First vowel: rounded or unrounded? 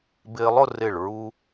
unrounded